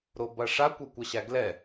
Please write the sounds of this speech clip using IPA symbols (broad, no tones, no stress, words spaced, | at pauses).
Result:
ɾobɐʂa kʷʌkʷɐɕæɡlɛ